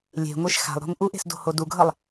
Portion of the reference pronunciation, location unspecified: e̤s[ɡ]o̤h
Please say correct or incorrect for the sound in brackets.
incorrect